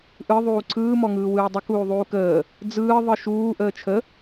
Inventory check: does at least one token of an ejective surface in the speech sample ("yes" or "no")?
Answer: no